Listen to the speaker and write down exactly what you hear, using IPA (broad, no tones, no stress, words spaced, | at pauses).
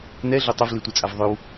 nɛɮo tˤəvlitʷet͡sʼav ðˤøw